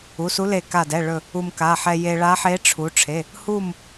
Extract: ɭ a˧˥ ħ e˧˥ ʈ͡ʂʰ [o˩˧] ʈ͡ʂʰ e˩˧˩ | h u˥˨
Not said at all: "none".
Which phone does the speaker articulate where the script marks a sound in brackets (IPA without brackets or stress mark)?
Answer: u˩˧